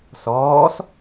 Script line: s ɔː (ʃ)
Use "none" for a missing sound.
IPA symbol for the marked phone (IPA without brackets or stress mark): s